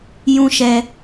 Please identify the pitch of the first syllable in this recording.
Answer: high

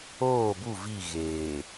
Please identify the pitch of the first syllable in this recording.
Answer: falling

